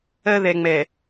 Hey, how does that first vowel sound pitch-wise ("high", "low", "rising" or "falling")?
high